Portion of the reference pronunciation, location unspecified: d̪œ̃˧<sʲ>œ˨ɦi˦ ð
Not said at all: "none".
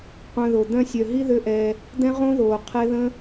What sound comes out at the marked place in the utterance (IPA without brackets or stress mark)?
sʲ